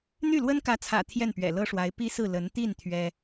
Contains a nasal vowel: no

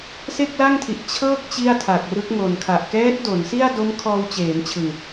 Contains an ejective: no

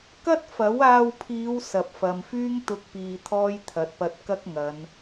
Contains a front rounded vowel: yes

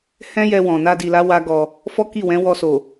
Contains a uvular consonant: no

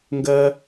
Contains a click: no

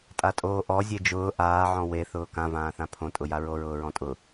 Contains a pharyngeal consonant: yes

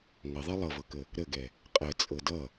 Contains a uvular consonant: yes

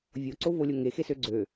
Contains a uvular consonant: no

